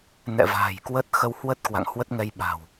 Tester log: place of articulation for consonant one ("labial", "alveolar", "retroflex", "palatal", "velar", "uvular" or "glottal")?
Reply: alveolar